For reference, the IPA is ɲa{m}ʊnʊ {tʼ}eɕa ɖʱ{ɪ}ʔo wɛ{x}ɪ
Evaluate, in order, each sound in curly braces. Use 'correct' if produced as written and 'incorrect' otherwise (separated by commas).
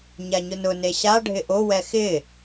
incorrect, incorrect, correct, correct